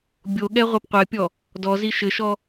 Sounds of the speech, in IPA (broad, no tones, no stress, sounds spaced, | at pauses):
bʲ o ɠ ɛ ʁʷ ɛ p qʷ ɛ pʲ ɔ | d ɔ z i ʃ ɘ ʃ ɔ